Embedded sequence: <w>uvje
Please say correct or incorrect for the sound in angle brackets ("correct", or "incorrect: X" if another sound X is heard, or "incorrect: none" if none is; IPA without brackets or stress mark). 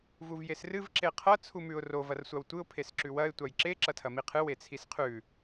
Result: incorrect: v